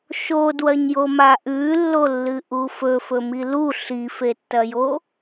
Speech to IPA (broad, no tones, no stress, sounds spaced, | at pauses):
ʃ o d w ɐ ɲ j o m a ʔ ʉ lː o lː ɨ ʔ u f ɵ f ɵ m i l u ɬ i f e tː ɐ j o